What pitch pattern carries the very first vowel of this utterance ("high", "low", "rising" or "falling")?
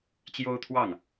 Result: high